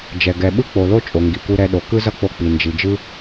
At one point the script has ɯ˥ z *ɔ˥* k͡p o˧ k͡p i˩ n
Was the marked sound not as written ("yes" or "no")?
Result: yes